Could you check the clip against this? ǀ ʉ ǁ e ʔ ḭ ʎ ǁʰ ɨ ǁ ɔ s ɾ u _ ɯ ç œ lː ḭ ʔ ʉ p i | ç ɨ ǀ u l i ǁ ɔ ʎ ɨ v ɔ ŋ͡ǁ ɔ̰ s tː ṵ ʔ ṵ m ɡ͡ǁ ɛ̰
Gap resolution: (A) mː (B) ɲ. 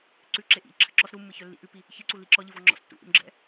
A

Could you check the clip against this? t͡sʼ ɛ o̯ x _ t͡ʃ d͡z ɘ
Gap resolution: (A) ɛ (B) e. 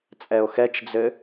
A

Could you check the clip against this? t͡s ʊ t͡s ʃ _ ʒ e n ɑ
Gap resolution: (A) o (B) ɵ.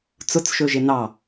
B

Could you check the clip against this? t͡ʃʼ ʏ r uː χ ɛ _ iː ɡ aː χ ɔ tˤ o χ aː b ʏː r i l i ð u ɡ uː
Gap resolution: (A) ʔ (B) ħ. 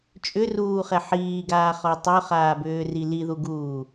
B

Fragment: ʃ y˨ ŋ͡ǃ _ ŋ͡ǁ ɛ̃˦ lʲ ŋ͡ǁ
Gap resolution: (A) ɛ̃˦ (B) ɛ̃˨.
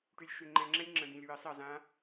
B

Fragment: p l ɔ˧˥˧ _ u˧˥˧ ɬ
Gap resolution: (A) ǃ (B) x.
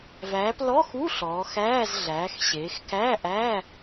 B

